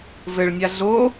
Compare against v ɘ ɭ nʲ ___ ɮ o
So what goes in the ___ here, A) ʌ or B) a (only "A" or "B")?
B